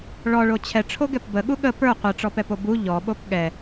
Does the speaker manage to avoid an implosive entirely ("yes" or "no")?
no